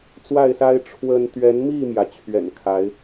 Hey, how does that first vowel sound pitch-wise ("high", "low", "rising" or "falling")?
falling